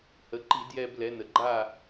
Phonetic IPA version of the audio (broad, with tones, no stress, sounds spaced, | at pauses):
h ə˩˧ ǃ i˧˩˧ d j ɛ˧ b l ɛ˩˧ n ə˩ ɡ͡ǃ a˥˨